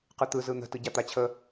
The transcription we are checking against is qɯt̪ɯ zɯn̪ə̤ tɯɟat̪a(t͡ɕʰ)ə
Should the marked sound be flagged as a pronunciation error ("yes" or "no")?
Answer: no